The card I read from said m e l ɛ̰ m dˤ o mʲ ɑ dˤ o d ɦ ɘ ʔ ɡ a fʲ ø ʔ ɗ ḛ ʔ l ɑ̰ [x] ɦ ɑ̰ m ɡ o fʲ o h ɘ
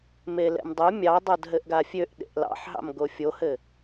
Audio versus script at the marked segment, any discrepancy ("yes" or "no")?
yes